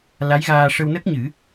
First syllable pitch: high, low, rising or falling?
rising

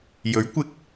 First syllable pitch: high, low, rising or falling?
rising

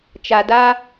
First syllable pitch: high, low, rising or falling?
low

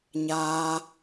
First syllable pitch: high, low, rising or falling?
high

